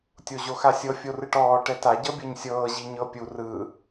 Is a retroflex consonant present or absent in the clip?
present